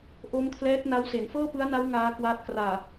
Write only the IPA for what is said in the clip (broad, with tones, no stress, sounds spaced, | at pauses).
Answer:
ʔ o˦˥ m kʰ l ɛː˦˥ t̚ n a˦˥ w s e˩˦ n f ɤː˥˩ p ɯ˦˥ a̯ n a˦˥ w ŋ aː˦˥ k w aː˦˥ t̚ k r aː˨˩